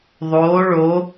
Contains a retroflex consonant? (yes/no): yes